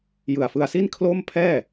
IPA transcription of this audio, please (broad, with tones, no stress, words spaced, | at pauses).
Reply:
jɯ˨˩a̯fɯ˧a̯ si˥˩nkʰlo˥˩m pʰɛː˥˩